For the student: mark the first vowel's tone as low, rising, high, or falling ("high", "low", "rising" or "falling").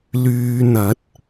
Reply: low